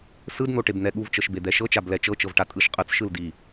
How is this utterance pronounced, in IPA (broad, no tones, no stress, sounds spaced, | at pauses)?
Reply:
s ɯ d n̪ o ʈ e b n̪ ɛ ɠ u v t͡ʃ ɤ ʃ b e d̪ ɛ ʃ ɤ t͡ʃ a b l ɛ t͡ʃ ɤ t͡ʃ ɤ v ʈ a tʼ ɯ ʃ qʼ ɯ t͡s ʃ ɯ l d i